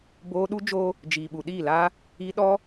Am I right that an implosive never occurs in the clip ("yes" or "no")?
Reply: no